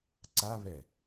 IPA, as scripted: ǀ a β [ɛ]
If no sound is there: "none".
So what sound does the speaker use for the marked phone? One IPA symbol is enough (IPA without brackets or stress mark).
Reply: ɛ